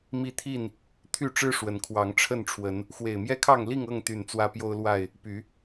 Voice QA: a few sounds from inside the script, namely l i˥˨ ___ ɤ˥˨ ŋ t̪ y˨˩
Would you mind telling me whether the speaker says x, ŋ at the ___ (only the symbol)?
ŋ